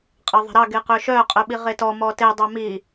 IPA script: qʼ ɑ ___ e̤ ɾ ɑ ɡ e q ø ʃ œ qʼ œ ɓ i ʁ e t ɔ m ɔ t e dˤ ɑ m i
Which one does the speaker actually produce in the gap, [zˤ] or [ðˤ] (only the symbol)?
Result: ðˤ